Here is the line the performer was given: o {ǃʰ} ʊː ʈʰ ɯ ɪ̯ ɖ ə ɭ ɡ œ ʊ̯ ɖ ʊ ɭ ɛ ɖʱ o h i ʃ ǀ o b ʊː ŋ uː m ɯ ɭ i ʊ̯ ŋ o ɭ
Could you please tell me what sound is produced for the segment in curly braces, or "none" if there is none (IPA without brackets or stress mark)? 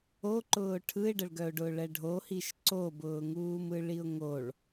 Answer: ǃ